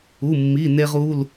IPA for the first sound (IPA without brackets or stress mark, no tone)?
u